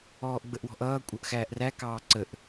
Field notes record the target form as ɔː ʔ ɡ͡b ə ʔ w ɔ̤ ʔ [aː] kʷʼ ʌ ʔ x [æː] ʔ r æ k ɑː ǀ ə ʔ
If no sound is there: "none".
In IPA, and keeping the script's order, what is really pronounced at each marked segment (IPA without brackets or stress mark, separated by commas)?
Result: ʌː, æː